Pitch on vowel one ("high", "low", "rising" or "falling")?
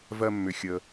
low